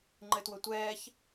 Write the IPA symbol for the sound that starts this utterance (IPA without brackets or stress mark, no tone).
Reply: ŋ͡ǃ